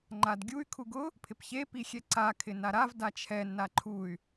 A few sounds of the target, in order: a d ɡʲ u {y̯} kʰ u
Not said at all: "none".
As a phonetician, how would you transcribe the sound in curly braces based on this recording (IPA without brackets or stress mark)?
y̯